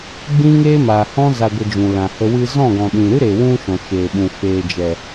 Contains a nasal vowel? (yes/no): yes